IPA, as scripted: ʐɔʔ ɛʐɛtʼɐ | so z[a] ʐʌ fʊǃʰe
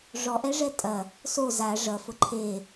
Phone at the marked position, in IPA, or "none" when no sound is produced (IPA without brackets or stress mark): a